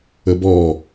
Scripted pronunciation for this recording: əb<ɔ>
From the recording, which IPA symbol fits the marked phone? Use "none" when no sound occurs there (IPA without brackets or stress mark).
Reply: ɔ